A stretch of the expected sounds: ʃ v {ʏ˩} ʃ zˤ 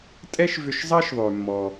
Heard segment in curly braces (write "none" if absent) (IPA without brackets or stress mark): ʏ˧